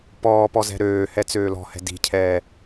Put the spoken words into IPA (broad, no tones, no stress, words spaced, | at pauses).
pɔːpɔ zɛ̤ɾøːhɛ t͡søːlɔ̤hɛ̤ di̤cʰɛː